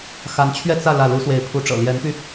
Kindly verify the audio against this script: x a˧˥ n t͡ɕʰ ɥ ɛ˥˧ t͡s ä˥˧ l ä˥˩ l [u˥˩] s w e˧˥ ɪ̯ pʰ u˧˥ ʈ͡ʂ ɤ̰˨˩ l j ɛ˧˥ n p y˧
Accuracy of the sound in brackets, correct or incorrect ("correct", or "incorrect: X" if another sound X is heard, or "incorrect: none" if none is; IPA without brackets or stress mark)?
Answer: incorrect: u˧˥